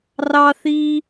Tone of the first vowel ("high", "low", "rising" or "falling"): high